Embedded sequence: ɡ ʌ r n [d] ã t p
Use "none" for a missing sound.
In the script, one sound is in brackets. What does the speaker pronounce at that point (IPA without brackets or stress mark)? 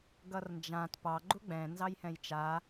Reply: d͡ʒ